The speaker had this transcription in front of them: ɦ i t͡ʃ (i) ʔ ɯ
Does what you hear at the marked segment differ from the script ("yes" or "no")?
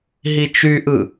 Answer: yes